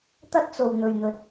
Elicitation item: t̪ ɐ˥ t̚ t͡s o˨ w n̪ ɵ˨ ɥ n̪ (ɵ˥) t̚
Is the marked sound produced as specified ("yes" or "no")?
no